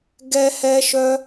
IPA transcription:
ɡɛ˦hɛ˦ʃœ˦

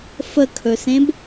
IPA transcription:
fəkʰɵsẽb

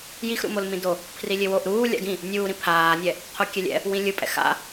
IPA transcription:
jixɾṵmol mĩdo | pʰrilʲewoʔ ɾuː lʲa̰ɡĩ | nʲuːɾĩ pʰaːnʲɛ | qʰokʲɛlʲɛ̰ | wĩlʲɯpʼɛ̰ xa̰

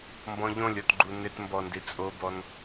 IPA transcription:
mbɔ̃ʎõlʲɔtɡ͡ǃu nɪtmbɔndi t͡sʼobɔn

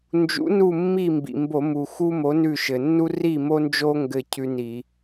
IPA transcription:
nd͡ʒṵ˨˥nu˦˨ mːi˦˨mbḭ˩mbo˧˩˧ mu˩xu˦ mo˨˥nʉ˦˨ʃɘ˩ nːu˦ ri˦˨mo˦nd͡ʒo˦ ŋɡɘ˦˨ cʰʉ˦ni˧˩˧

